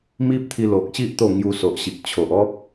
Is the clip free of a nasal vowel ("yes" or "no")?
yes